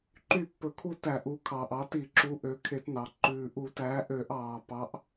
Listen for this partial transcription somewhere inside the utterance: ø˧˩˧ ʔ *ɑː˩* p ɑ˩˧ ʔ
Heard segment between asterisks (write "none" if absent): ɑː˩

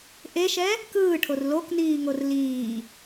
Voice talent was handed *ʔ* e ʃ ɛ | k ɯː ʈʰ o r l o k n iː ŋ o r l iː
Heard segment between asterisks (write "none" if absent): ʔ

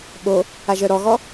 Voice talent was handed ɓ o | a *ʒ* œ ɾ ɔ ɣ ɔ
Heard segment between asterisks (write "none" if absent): ʒ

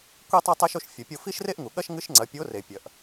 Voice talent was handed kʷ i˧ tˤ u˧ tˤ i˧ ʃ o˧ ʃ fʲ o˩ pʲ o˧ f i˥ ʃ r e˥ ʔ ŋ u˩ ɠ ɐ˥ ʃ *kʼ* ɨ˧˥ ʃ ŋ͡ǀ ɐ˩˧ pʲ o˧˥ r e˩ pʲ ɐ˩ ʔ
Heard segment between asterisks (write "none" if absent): ŋ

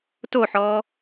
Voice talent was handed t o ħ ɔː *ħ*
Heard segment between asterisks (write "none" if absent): none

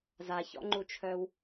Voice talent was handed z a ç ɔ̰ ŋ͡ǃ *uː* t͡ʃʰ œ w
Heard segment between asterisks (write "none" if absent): u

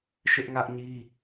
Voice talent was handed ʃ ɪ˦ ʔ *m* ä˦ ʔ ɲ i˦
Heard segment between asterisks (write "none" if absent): ŋ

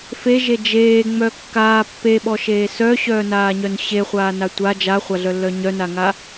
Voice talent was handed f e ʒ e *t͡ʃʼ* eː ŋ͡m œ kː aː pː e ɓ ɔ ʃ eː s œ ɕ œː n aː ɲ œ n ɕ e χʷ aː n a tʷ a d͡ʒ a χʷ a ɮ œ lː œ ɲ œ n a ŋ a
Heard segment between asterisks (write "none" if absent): d͡ʒ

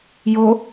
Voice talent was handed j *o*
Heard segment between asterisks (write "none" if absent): o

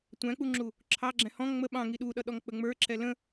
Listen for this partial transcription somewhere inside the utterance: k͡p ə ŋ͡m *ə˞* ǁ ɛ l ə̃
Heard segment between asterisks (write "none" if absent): ə˞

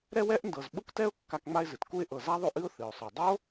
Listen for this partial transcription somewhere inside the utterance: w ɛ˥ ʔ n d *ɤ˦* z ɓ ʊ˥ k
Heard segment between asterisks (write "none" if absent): ɤ˨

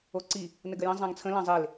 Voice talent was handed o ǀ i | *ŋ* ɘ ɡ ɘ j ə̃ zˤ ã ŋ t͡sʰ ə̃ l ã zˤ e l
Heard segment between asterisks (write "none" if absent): n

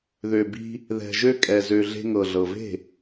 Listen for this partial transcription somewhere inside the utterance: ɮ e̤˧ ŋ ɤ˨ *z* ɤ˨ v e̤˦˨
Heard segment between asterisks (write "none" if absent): ɮ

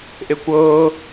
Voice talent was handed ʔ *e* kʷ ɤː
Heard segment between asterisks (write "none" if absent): e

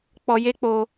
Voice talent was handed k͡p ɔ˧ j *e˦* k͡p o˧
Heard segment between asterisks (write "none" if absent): e˦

